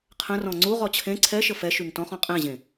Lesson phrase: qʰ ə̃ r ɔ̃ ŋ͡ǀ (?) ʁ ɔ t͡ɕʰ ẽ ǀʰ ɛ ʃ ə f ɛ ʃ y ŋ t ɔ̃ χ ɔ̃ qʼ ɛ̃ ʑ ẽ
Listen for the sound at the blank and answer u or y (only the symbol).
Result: u